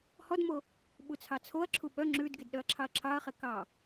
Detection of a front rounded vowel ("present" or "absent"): present